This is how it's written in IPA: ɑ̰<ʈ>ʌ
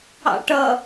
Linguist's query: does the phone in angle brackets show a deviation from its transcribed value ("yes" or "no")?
no